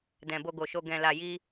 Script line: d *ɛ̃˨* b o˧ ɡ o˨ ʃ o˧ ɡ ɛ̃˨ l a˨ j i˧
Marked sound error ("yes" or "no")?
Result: no